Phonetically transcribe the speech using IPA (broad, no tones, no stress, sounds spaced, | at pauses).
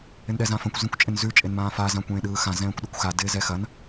ɪ n ɗ ɛ z ã f ɐ̃ kʷ z ɛ̃ kʷ t͡ʃʼ ɪ n z ʉ t͡ʃʼ e n m ãː f a z ã kʷ ẽː ɗ ɯː x ã z ɛ̃ː kʷ ɗ ɯ kʷ x a d ɪː z ɛ x ɐ n